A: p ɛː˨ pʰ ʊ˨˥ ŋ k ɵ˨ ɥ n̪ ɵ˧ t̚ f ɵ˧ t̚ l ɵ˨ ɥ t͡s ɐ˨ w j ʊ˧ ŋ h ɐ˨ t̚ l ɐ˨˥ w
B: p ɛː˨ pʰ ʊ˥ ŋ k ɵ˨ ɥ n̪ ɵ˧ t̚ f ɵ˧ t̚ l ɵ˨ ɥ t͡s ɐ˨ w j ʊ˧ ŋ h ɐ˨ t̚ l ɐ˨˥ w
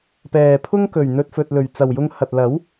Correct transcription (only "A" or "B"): B